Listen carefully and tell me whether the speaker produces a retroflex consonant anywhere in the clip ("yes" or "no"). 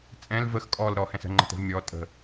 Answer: no